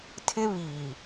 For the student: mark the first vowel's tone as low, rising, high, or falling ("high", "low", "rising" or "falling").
high